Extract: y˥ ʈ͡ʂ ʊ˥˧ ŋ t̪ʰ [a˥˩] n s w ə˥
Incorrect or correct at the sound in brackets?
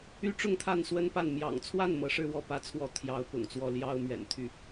correct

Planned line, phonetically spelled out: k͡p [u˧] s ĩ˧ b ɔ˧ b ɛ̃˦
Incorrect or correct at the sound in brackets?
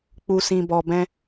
correct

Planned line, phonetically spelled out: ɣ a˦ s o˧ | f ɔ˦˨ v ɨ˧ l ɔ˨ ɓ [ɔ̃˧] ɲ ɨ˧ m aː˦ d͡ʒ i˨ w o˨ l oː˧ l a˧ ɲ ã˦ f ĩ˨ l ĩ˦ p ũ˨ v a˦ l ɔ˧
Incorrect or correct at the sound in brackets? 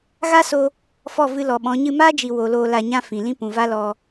incorrect: ɔ̃˨˦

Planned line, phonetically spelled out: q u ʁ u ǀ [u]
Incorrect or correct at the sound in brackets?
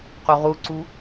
correct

